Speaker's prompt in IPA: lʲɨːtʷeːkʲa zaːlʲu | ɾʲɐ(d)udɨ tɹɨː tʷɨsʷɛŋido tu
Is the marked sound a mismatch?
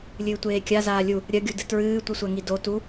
yes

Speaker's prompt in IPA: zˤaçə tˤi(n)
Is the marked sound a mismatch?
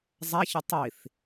yes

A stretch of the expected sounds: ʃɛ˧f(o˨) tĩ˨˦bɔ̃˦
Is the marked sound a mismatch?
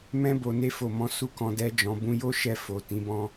no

